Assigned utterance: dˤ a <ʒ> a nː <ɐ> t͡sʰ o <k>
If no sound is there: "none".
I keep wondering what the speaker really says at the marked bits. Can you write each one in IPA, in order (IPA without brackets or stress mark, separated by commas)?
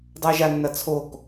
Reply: ʒ, ɐ, k